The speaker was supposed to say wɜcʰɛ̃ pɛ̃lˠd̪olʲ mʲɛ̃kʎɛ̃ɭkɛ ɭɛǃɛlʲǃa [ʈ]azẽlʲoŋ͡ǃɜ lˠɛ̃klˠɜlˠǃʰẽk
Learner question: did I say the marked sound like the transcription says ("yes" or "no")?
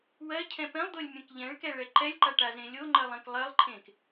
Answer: yes